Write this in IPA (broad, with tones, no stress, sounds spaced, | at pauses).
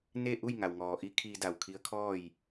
n e˥˨ ʔ u˥˨ j ŋ a˩ w ŋ ɔː˩ ʔ i˧˥ kʰ iː˧ d a˧˩ w kʰ i˧˥ ə̯ kʰ ɔː˥˨ j